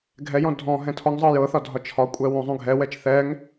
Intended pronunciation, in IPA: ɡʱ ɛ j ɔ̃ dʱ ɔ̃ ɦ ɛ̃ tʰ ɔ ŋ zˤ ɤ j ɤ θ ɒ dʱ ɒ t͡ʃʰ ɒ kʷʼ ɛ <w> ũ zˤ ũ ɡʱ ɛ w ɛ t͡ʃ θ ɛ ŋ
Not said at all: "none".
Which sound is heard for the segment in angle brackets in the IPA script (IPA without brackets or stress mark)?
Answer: w